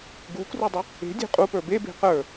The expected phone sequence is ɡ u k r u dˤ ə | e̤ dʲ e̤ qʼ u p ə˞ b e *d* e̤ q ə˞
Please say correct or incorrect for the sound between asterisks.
incorrect